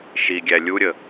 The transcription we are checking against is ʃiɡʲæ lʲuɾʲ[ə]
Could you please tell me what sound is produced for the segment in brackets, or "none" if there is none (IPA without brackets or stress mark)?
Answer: ə